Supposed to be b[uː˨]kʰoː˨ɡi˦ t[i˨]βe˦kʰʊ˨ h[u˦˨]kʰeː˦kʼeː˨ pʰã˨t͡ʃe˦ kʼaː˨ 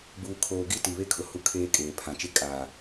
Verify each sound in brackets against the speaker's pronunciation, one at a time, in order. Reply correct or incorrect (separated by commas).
correct, correct, incorrect